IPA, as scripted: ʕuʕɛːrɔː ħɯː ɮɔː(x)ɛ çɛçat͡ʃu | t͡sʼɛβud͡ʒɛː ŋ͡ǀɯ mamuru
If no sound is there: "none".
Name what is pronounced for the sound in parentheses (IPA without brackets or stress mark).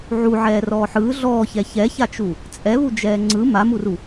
ç